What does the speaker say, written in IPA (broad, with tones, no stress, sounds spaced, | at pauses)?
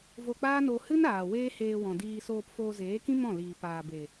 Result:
v o˧ k͡p aː˦ n o˧ h ɨ˦ n aː˨ w eː˦ h eː˧ w ɔ̃˨ d iː˧ s oː˧ p f oː˧ z eː˨˦ k ĩ˦ m ɔ̃˦˨ l iː˨ p aː˨ b e˨